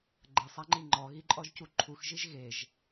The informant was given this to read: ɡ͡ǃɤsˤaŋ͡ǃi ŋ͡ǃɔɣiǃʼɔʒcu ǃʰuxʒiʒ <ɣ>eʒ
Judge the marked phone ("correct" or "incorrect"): correct